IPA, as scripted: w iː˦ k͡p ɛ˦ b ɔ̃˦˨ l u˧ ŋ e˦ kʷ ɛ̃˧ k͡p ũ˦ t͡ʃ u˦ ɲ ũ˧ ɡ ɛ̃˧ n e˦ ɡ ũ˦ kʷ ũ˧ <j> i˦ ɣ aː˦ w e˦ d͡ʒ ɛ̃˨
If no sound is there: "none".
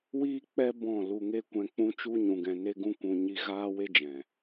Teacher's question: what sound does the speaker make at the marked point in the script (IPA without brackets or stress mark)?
ɲ